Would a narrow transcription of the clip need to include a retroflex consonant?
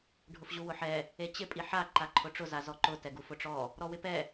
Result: yes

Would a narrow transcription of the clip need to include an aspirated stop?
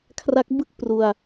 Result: yes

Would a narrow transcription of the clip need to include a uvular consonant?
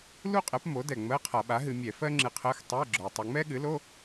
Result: yes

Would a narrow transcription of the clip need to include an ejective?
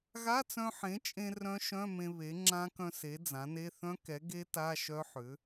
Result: yes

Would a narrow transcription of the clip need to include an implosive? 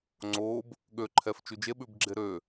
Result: yes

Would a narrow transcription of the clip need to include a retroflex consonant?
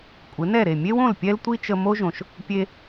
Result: no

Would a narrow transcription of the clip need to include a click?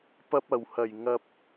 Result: no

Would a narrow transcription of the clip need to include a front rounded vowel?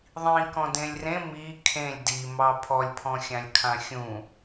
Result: no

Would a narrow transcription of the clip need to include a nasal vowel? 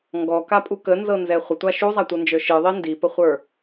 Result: no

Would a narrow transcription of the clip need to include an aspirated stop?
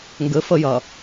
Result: no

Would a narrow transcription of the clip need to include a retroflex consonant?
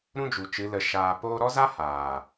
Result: no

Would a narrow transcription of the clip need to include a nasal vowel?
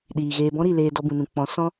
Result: yes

